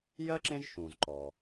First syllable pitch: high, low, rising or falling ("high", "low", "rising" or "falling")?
high